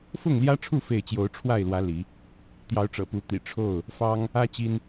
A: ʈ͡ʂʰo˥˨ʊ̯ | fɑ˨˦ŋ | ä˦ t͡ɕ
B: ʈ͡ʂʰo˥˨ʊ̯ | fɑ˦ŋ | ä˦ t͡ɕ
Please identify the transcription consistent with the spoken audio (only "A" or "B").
B